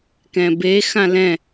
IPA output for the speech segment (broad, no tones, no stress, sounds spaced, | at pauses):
k ɛ̃ b e x ã l ɛ̃